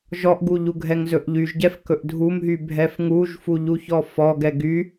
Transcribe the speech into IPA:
ʒ ɔ ʔ ɡ u ʎ u ɡʱ ɛ ŋ z ɵ ʔ ʎ y ʒ ɟ ɛ f k ɵ ʔ dʱ u m ɦ y bʱ ɛ f ŋ u ʒ f u ʎ u ç ɔ f ɔ ɡ ɛ ɡ y

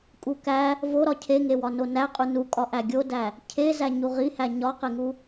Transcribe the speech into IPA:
kʼ u k æ | v o ɾ ɒ cʰ e ŋ e w ɒ n o n æ qʼ u n u kʼ ɒ ʔ æ ɡʲ o d æ | cʰ e z æ ɲ u ʁ i h æ ɲ ɒ q e ŋ u

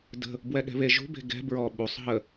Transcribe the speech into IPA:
d ə̤ | b w ɛ ɠ ɛ̤ β e ʒ ṳ b e̤ ɡ ɛ̤ b ɹ ɔ ɓ u sˤ ɦ ə

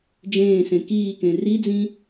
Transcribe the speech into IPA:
d͡ʒ ẽː s ẽ k iː k ẽ r i d͡z ĩ

